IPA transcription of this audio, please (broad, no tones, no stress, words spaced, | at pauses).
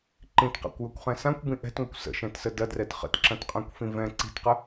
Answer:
ǃĩtqa̰kʷjɐkʷχɛ̃ sãkʷbĩ ʔɛ̤tŋʷəkʷ sə̰ʃɛ̃tsə dɐdrɛt χə̰tǁɐ̃tqʼãkʷfĩ vɛ̃ ǀi̤tqə